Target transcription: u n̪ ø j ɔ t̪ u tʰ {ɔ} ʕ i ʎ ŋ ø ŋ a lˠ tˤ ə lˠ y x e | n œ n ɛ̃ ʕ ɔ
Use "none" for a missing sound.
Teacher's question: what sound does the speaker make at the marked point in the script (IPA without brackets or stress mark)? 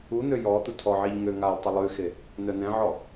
ɔ